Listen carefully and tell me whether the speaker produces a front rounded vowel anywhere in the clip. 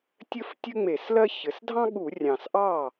no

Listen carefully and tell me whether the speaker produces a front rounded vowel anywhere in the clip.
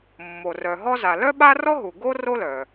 yes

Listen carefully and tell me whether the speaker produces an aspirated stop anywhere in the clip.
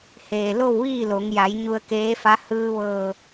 no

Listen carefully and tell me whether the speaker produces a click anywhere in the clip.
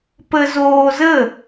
no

